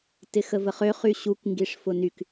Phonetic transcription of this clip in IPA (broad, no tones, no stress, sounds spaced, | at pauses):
t ɪ x ə v ə χ ø χ y ɕ u k ŋ ɡ i ʂ f ʊ n y k